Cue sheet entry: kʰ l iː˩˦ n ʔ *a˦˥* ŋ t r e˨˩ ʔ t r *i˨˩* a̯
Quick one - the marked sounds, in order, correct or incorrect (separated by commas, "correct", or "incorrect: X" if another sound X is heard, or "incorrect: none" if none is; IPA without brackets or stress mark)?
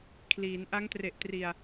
correct, correct